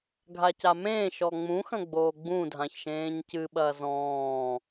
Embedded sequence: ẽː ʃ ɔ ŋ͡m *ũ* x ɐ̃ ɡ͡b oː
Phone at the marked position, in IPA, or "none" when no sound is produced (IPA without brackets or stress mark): ũ